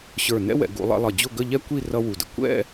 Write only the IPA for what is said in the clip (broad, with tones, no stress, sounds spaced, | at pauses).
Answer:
ɕ ə˞˧˩ n ɛ̰˥ w ɛ̰˩˧ ɡ ṵ˩˧ lˠ ɛ̰˧ lˠ ʌ˧˩ d͡ʑ ʊ˥˧ ɡ ə˥˧ ʎ ɛ˥ kʷ i˥˧ r ʌ˥ w u˧˩ d ə̰˧ kʷ ɛ̰˥˧